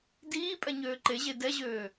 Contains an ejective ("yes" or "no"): yes